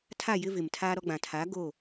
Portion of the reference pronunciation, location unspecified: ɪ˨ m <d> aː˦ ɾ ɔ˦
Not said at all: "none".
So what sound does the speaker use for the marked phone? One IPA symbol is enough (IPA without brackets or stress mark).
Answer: tʰ